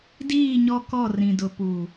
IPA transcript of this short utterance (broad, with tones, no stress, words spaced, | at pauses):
diː˦˨ɲɔ˦kɔ˦˨ rĩ˨dʊ˨ pu˨